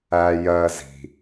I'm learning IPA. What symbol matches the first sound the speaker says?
æ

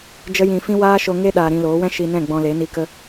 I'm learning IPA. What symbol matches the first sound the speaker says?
d͡ʒ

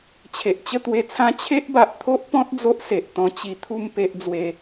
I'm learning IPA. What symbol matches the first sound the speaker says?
t͡ɕʰ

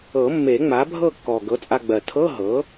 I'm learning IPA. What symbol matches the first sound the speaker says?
ɤ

